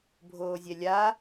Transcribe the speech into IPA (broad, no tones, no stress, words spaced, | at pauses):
bʱoːzʲɛlʲa